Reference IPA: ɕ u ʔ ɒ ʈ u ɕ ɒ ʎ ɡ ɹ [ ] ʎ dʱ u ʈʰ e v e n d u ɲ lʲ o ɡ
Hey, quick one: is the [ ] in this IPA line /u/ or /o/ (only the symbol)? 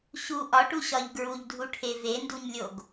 u